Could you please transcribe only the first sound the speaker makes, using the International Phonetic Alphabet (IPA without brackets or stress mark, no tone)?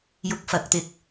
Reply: j